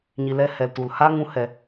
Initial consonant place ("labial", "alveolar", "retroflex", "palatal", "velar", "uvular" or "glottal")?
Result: palatal